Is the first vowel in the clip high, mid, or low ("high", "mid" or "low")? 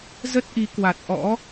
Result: mid